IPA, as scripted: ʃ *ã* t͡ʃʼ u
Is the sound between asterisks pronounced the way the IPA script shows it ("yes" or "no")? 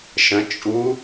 no